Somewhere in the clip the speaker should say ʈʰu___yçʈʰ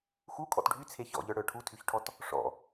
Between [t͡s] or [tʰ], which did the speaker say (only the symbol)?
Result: tʰ